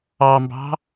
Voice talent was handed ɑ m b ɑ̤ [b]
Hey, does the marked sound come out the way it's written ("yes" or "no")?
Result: no